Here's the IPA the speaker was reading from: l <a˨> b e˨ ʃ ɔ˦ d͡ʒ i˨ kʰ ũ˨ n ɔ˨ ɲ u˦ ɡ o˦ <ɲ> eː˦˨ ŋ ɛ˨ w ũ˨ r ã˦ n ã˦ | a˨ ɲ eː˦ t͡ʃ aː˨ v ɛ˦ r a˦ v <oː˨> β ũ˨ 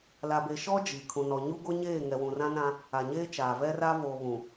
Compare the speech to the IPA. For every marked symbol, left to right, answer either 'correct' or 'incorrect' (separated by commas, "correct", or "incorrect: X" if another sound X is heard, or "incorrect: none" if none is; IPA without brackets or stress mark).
correct, correct, correct